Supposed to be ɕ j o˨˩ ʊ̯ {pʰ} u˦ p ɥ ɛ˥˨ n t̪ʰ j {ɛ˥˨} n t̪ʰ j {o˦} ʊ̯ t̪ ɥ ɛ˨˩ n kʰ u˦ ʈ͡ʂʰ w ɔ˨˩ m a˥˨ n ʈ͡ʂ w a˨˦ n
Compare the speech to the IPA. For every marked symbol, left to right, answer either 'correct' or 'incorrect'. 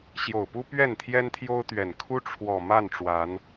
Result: incorrect, incorrect, correct

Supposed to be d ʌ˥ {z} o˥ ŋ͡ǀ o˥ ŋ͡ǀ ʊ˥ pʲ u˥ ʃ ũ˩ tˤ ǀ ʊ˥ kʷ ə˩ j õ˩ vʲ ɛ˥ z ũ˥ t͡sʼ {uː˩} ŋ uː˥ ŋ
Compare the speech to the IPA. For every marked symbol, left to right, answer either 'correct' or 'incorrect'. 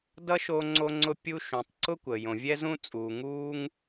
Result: incorrect, correct

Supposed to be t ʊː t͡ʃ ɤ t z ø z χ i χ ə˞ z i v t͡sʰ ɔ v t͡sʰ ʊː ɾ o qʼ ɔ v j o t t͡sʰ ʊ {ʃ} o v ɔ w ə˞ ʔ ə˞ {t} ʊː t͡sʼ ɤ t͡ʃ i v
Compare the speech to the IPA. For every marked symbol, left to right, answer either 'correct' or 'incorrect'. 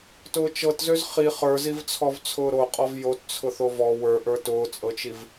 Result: incorrect, correct

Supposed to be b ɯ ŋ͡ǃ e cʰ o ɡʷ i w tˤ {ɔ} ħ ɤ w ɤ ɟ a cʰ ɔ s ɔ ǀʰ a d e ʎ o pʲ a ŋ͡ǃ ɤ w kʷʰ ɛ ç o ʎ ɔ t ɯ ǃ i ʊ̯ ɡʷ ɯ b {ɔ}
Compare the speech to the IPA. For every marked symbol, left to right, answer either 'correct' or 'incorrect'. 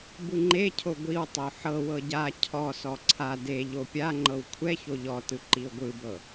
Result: incorrect, incorrect

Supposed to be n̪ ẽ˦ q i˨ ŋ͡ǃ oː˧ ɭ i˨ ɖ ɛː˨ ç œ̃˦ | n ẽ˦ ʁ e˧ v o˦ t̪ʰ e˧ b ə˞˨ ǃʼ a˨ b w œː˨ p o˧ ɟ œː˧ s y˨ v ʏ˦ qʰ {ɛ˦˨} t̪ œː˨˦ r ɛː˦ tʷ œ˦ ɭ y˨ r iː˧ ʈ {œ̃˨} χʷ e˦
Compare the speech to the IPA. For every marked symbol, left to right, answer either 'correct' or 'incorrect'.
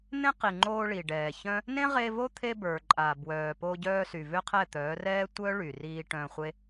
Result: correct, incorrect

